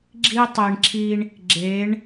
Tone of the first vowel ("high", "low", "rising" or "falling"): high